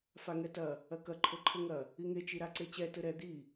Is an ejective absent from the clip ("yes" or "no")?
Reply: yes